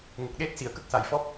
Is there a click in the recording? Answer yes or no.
no